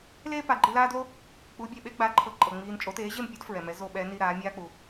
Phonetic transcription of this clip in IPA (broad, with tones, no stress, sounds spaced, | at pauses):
l eː˥ p a˩˥ ɡ͡ǃ i˧ l aː˥ d l o˥ | k͡p u˩˥ bʲ ɛ˩ ɓ e˥ ɡ͡b a˩˥ ǃʰ ɤ˩˥ ǃʼ ɤ˩ ŋ͡m iː˧ n t͡ʃʼ o˩˥ t eː˩˥ ʑ e˥˩ m pʲ ɔ˥ d f ɹ ɛ˩ m ɛ˩˥ z o˧ ɓ ɛ˩˥ n i˧ ɾ aː˩˥ mʲ aː˥ k͡p u˩